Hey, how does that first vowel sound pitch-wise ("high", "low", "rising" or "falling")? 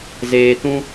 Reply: low